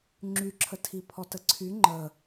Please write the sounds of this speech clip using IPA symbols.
ŋ͡ǁ y ǁʰ ə tʰ i pʰ ɔ t ə ǀʰ y ŋ͡ǃ ə

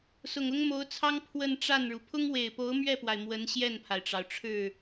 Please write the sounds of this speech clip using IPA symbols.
s ʊ˨˩ ŋ ʊ˥ ŋ m o˧˥ ʊ̯ t͡sʰ ɑ˥ ŋ pʰ w ə˥˧ n ʈ͡ʂ a˥˩ n ɻ u˩ pʰ ʊ˥ ŋ w e˨˩ ɪ̯ p o˧˥ ʊ̯ m ɥ ɛ˥˩ p w a˩ ɪ̯ m w ə˧˥ n ɕ j ɛ˥˩ n pʰ a˩ ɪ̯ ʈ͡ʂ ɑ˩ ʊ̯ ʈ͡ʂʰ ɻ̩˥˩

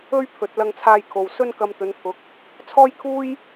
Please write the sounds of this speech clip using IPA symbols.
ɵ˥ ɥ pʰ ɵ˨ t̚ l ɐ˧ ŋ t͡sʰ aː˧ j kʰ o˨ w s ɵ˥ n k ɐ˧ m t̪ ɵ˨˧ n pʰ ʊ˨˥ k̚ | t͡sʰ ɔː˥ j kʰ uː˥ j

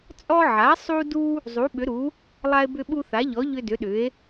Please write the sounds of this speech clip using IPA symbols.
t͡sʼ ɔ˦ ʕ a˩˥ sˤ u˦ d u˦ | zˤ u˩˥ ɓ ʏ˩˥ ɾ u˩˥ | lˠ a˦ e̯ b ʏ˦ ɓ u˦ θ a˩˥ ʎ ɔ˩˥ ʎ ʏ˦ d ʏ˩˥ ɗ ʏ˩˥ e̯

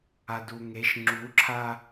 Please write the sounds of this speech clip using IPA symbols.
a d u ŋ e ʃ ŋ͡ǁ u ǁʰ a

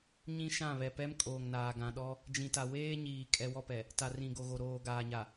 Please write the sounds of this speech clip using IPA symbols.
ɲ ĩ˦ ʃ ã˦˨ β ɛ˨ p ɛ˦ m kʼ oː˨ ŋ n aː˨ ɡ ã˨ ɗ ɔ˦ | d͡ʒ ĩ˨ t a˨ w eː˦ ɲ iː˨ kʼ ɛ˦ w ɔ˦ p ɛ˨ | t a˨ r ĩ˨ ɡ o˨ ɣ o˨ ɾ oː˨ ɡ aː˨ ɲ a˨

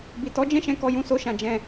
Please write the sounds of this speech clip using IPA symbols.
b i˨ t ɔ˨˦ d͡ʒ ɛ̃˦˨ ʃ ɛ̃˧ k ɔ˧ j ũ˧ s o˧ ʃ ã˨ d͡ʒ ɛ̃˨

